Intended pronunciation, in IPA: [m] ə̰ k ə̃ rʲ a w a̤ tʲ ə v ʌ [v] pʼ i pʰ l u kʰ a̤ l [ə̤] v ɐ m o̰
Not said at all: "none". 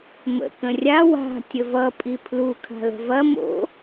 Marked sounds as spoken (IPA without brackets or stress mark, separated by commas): m, none, ə̤